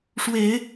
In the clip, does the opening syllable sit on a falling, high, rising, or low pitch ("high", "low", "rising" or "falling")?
low